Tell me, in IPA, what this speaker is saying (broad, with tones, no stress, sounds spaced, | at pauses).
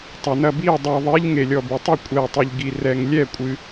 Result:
tˤ ɐ˨ n ɐ˥˩ b i˥˩ ə̯ dˤ ɛ˨ ðˤ e˧˥ ʎ ŋ e˨ lʲ ɔ˨ b ɨ˨ tˤ ɨ˥˩ kʷʼ ɛ˨ ə̯ tˤ e˨ ʎ ɡ i˨ r ɛ˨ ŋ lʲ ɛ˥˩ kʷʼ ɨ˨